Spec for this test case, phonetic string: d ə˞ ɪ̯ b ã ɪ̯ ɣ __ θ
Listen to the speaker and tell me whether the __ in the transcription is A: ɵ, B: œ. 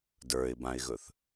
A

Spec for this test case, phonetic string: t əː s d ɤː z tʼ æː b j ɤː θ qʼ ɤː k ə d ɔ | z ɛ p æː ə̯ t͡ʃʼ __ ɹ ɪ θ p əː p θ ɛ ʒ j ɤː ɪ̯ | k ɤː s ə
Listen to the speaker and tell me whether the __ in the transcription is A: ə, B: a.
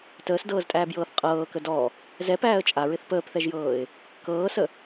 B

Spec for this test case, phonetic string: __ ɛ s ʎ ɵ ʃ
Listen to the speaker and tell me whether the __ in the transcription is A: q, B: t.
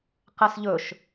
A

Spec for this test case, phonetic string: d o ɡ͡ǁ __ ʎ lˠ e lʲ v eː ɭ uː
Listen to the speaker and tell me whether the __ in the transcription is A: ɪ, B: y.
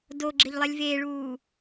A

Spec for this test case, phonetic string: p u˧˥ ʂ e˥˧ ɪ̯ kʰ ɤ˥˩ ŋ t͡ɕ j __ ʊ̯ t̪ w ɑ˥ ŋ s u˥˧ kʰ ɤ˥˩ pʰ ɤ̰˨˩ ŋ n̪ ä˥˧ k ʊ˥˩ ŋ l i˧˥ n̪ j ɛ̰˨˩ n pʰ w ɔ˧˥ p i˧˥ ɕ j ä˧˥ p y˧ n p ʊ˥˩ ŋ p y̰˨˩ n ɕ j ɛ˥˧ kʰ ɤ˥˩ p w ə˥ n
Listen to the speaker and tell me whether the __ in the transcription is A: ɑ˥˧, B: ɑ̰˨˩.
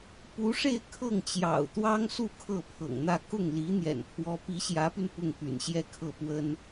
B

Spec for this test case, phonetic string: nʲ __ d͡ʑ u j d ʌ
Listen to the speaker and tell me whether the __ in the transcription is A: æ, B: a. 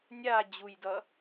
B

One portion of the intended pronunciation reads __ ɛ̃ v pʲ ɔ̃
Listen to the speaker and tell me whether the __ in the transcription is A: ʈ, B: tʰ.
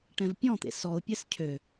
A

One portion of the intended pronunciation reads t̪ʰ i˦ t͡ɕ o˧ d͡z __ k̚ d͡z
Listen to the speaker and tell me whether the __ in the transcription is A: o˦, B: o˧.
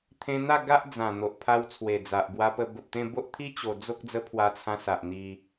A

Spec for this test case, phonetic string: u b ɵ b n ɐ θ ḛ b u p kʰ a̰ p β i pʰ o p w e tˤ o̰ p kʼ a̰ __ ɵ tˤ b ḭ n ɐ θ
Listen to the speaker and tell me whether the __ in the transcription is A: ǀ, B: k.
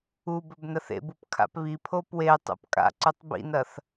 A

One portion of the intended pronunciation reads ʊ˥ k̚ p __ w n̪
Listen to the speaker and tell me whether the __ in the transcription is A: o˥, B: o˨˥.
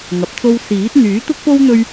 A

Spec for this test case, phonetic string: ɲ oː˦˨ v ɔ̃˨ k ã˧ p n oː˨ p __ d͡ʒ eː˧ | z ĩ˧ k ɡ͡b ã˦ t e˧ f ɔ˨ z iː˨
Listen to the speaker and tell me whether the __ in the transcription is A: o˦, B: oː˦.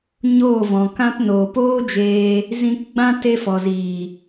B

